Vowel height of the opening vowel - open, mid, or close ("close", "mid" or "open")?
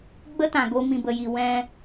mid